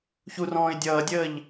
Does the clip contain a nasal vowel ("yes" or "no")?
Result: yes